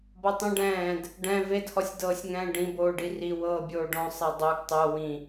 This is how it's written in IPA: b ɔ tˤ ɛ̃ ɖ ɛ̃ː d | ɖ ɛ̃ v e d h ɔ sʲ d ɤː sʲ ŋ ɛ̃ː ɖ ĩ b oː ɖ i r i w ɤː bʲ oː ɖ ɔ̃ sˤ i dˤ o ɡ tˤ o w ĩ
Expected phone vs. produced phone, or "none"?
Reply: none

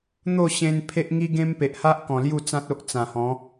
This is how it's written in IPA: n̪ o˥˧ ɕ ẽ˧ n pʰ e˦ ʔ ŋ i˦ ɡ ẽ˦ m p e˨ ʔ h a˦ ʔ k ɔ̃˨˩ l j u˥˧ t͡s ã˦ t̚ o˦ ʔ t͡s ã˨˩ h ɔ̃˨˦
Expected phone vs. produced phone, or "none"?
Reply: none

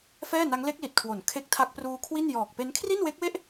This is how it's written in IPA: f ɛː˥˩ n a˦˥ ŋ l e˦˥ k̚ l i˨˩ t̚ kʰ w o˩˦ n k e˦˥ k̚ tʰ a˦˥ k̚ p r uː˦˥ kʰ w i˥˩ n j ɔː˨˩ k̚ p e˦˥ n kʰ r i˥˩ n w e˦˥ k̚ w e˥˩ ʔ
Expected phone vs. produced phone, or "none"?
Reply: k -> kʰ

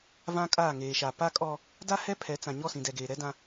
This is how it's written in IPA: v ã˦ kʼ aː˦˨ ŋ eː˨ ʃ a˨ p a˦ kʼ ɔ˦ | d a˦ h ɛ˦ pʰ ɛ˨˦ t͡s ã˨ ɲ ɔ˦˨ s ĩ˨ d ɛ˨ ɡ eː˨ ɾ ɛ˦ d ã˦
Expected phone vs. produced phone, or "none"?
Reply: none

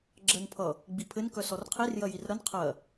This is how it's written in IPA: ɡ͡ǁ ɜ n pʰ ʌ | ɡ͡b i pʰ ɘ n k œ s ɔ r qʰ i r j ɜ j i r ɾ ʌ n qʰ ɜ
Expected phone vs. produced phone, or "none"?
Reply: none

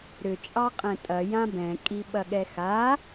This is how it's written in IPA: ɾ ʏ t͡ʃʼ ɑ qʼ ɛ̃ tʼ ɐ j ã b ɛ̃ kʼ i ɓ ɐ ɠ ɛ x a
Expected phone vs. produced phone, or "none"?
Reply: none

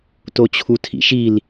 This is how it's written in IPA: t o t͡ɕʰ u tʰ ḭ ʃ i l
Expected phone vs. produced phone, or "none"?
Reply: none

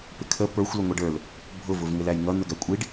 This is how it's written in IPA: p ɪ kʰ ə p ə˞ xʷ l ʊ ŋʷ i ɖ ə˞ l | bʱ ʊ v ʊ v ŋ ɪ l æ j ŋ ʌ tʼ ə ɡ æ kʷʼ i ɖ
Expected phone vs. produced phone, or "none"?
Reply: tʼ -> n̪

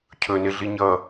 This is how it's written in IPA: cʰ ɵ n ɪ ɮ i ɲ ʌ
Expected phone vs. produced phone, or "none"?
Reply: none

